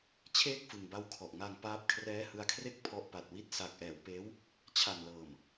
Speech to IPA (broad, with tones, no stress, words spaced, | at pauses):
t͡ɕʰeː˥˩k̚fɯ˨˩ŋba˦˥w kʰɔ˨˩ʔŋa˧ŋpaː˦˥p̚ kʰrɛː˦˥hɯ˧a̯kʰre˥˩k̚ pʰɔ˦˥ʔpa˨˩t̚wi˦˥t̚ sa˨˩k̚ʔɛː˩˦wpeː˦˥w | t͡ɕʰa˨˩nlɤː˨˩m